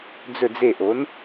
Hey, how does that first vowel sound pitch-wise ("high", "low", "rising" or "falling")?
falling